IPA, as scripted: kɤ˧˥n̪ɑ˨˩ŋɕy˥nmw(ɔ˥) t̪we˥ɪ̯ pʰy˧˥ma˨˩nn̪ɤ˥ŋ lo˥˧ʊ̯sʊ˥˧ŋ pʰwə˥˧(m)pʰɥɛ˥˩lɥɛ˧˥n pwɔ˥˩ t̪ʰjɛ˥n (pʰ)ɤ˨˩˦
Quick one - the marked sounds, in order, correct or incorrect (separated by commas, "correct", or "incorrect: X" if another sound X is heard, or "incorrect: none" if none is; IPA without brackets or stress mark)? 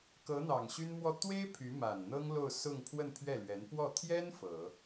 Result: incorrect: ɔ˥˩, incorrect: n, incorrect: f